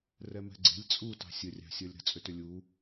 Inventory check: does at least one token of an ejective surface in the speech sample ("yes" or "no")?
yes